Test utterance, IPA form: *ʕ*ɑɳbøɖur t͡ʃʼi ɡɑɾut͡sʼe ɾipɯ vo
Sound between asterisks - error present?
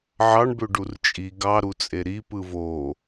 no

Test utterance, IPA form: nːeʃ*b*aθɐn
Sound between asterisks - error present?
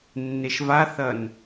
yes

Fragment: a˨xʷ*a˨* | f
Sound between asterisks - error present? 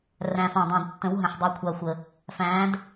yes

